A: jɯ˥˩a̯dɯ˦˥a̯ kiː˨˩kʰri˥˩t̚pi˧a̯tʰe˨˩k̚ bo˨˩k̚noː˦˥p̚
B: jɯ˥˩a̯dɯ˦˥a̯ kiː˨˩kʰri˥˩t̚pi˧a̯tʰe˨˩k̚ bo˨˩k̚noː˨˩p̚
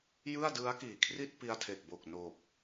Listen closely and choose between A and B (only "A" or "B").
B